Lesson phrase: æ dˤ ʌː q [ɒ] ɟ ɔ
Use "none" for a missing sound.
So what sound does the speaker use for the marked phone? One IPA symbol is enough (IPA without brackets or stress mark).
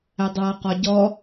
ɒ